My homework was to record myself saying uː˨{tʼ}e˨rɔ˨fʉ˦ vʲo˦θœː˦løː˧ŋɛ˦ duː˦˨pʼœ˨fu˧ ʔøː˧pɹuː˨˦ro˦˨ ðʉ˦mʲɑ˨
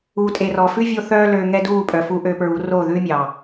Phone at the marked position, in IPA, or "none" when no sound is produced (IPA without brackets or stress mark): tʼ